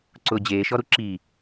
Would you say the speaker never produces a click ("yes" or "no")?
no